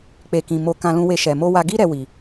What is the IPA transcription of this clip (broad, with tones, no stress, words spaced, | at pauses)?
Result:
k͡pe˨kĩ˨ mo˧kã˧lũ˧we˧ ʃɛ˨mo˧wa˧ ɡi˧ɾɛ˨ wi˨